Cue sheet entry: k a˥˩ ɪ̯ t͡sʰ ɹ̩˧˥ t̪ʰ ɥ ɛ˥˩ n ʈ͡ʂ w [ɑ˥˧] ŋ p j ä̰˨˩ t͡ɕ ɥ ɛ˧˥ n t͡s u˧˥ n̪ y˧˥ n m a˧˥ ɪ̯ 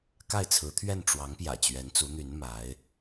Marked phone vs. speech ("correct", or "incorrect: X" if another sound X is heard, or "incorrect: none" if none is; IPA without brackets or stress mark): incorrect: ɑ˧˥